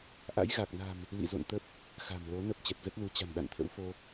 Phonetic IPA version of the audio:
ʔa̰˧˥jɣa˨˩k̚na̤˨˩m | lḭ˧˨zo̰˧˨n t̪ə˦˥p̚ | xa̤˨˩mlo˨˦nə˦˥p̚ t͡ɕɛ˨˩t̚zə˦˥t̚lu˨˦ t͡ɕa̤˨˩nɗa̰˧˨nt̪ʰə̰˧˥wfo˧

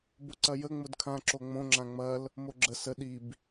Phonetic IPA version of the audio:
bʊǀɐjə ŋ͡mʊdkʰã ǁoŋ͡mõ ŋ͡ǁãŋ͡mɐl | moɡ͡ǁə sə ɗib

